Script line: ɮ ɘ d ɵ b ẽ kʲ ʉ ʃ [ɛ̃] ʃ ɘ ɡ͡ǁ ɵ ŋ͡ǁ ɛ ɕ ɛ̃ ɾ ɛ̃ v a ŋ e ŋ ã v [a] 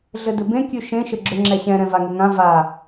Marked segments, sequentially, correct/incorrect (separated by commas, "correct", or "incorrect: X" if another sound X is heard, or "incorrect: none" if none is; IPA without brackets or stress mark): incorrect: ẽ, correct